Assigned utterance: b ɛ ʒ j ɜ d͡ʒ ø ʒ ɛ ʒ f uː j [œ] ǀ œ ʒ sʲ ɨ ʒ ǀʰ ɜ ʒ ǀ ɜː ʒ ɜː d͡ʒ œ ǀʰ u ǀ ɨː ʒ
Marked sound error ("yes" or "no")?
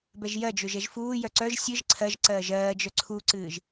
no